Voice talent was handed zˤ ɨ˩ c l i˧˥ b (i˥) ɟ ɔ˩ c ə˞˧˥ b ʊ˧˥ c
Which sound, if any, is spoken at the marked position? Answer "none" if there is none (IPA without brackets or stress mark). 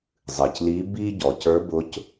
i˥